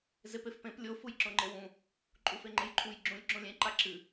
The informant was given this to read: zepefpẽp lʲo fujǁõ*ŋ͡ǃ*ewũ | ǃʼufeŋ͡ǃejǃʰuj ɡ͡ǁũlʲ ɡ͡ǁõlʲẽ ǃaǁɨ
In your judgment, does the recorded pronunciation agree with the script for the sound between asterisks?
yes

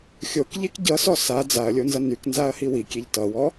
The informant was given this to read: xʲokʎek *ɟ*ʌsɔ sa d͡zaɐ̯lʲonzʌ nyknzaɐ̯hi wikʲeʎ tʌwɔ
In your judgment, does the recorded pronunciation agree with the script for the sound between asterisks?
yes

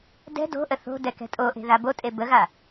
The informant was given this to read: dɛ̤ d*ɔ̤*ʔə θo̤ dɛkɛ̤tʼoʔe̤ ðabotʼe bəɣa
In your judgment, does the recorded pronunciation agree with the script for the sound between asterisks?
no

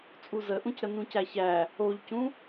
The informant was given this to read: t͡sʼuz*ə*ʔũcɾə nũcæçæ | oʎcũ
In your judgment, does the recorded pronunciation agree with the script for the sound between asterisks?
yes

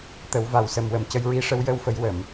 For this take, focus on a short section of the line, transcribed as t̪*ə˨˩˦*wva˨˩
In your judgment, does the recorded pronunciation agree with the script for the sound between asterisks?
yes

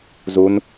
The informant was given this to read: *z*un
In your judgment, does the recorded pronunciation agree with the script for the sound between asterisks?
yes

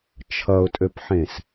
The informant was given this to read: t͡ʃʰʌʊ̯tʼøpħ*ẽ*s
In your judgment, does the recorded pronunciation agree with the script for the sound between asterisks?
yes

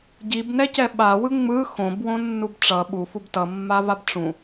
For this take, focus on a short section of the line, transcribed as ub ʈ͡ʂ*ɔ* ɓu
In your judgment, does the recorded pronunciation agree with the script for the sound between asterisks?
no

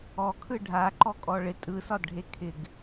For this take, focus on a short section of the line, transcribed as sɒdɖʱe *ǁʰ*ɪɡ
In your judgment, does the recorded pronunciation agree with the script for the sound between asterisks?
no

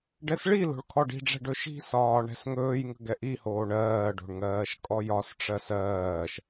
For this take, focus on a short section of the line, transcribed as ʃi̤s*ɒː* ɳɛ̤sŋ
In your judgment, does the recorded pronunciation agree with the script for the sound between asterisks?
yes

